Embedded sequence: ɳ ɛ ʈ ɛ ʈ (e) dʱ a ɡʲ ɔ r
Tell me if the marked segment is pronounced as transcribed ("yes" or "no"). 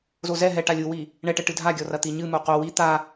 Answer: no